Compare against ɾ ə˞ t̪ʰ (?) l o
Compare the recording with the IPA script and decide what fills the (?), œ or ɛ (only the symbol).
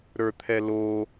ɛ